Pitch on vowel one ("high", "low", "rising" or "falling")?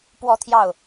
falling